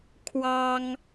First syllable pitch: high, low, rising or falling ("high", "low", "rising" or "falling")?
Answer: high